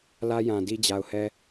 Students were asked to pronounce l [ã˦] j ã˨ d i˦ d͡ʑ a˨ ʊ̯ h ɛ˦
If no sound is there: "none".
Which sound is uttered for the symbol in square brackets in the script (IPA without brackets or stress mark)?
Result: ä˦